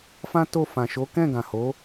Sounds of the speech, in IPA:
fã˦to˦˨ fã˨ʃo˨˦ kɛ̃˦˨ɡã˨ho˨˦

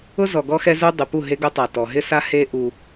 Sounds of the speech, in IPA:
ʊ˦zɔ˨ɡɔ˦xɛ˦ zu˦ dˤɪ˨pu˦˨ɦe˦ɡo˦ tˤa˨tɔ˨ ɦɪ˦sa˦ he˦ ʔu˦

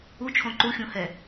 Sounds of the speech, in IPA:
ut͡ʃʰõ ǃuxʲũhɛ

